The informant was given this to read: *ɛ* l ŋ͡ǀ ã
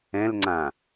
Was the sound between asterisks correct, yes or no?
no